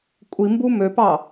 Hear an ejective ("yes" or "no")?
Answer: yes